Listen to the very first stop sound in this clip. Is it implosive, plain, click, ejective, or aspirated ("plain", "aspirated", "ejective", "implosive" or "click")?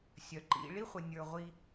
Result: click